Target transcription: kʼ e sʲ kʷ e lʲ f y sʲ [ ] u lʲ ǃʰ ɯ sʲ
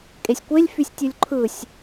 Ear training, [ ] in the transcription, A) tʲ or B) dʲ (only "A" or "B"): A